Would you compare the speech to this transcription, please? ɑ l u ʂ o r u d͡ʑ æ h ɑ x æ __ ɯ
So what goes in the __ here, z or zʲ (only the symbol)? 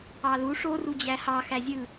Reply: zʲ